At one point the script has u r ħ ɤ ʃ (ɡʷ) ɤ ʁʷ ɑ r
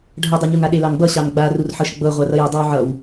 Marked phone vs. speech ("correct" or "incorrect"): incorrect